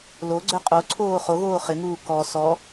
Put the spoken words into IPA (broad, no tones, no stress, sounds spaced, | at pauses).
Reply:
l o ɡ͡ǀ œ qʼ o ǀʰ oː χ o ɣ oː χ ɪ ŋ uː k ɔ s ɔ